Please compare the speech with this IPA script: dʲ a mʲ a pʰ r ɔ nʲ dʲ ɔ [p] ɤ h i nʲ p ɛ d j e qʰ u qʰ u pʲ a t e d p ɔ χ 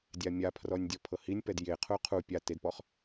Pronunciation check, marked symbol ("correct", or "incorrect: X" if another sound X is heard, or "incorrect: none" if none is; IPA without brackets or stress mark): incorrect: pʰ